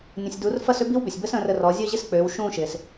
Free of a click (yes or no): yes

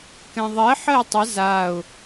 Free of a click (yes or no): yes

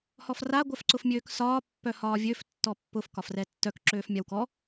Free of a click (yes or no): no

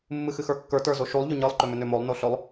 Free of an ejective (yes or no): yes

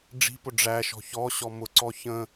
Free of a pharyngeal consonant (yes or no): yes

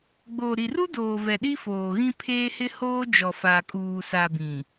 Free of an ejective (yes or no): no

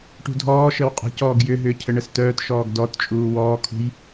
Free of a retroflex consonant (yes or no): no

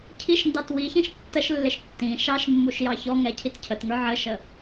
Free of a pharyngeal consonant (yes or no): no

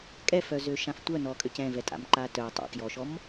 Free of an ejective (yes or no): no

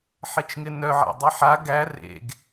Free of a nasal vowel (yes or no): yes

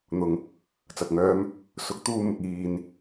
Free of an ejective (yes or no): yes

